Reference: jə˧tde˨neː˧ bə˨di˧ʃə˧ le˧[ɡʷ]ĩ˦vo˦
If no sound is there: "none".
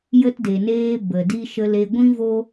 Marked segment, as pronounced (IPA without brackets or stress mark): ɡʷ